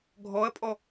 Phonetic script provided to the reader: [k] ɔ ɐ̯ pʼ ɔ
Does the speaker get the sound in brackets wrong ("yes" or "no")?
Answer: yes